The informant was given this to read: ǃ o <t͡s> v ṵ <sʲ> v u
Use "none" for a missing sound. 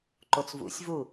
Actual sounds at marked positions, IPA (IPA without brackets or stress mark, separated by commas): t͡s, sʲ